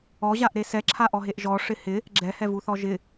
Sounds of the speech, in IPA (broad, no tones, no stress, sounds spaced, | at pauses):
ɔ ʑ a ʔ ɾ e s ɛ ǁʰ a ʔ ɔ ɦ e ʔ ʒ ɔ ʂ ɪ h ɪ | ɡ͡ǁ ɛ h ɛ v u θ ɔ ʒ ɪ